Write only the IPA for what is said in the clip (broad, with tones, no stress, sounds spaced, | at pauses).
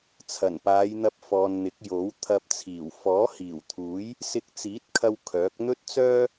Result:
t͡sʰ ɐ˨˩ n p aː˨˧ j n̪ ɐ˧ p̚ f ɔː˨ n n̪ ɪ˨˥ k̚ j o˨˥ w t̪ʰ ɐ˧ p̚ t͡sʰ iː˨˩ w f ɔː˨˥ h iː˨˩ w t̪ʰ uː˨˥ j | s ɪ˧ k̚ t͡s iː˨˥ t̚ kʰ ɐ˧ w kʰ œː˨˥ k̚ n̪ ɵ˥ t̚ t͡s œː˥